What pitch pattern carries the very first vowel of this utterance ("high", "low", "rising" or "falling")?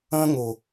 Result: high